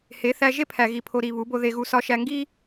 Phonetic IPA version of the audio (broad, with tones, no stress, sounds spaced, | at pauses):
h e˨˦ θ æ˧ ʒ e˦ pʰ æ˨ ɣ i˨ pʰ o˨ ɾ i˨ β u˨˦ b o˧ ð e˧ ɣ u˧ s ɒ˧ ʃ æ˧ ŋ ɡ i˦